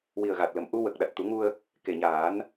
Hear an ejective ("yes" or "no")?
no